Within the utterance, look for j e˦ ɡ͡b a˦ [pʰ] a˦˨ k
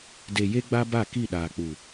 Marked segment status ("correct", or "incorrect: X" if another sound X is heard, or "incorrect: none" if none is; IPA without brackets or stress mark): incorrect: b